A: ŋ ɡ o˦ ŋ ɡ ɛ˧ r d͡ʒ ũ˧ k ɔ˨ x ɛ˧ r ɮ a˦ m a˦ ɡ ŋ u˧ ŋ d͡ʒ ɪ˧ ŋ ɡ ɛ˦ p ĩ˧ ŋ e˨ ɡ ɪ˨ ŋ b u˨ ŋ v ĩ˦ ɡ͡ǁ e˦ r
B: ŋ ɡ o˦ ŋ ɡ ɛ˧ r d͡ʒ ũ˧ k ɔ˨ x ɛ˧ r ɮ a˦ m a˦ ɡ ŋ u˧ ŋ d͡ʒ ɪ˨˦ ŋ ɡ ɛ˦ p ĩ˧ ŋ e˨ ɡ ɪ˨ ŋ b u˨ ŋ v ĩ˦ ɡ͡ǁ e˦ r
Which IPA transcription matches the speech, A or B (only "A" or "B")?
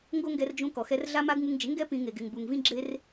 B